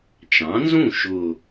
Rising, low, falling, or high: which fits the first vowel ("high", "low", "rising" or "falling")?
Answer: rising